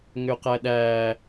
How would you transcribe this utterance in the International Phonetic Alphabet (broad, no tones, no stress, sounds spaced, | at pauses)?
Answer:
ŋ ʏ ʊ̯ q æ ɗ æː